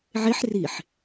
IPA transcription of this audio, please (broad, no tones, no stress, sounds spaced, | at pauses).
ʕ e ħ r i ħ